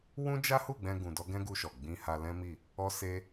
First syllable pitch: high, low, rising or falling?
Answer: high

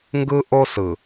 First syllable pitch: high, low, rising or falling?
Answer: high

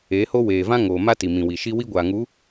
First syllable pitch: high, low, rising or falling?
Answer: rising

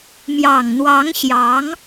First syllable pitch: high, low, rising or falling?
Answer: low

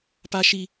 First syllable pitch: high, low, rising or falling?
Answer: high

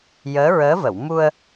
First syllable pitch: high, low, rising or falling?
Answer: rising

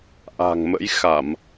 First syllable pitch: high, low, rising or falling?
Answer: low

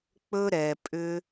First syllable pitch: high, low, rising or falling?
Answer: high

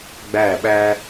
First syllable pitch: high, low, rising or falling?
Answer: falling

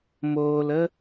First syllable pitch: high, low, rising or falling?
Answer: low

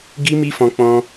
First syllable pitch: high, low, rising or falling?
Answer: high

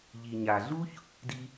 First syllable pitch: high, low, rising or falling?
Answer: low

